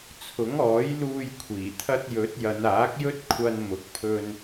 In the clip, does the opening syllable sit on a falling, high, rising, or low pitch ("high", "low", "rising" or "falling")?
rising